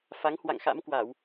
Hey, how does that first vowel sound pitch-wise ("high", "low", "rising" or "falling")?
rising